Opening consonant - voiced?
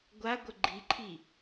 yes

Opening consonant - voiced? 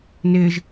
yes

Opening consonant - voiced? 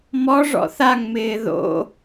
yes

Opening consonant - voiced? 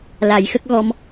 yes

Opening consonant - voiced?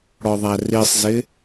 yes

